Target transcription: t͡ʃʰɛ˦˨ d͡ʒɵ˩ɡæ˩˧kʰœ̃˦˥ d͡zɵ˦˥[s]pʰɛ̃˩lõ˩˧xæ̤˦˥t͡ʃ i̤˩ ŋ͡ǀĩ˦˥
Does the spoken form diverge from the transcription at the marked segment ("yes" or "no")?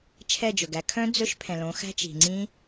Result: yes